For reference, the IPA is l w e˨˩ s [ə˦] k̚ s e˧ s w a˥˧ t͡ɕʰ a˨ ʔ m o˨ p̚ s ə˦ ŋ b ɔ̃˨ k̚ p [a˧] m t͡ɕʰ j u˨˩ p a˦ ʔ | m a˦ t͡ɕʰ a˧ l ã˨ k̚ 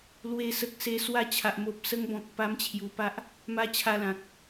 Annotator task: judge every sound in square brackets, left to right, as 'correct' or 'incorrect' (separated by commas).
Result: incorrect, incorrect